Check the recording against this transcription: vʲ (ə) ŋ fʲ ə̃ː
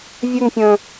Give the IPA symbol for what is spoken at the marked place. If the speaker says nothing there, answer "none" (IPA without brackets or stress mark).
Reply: ɵ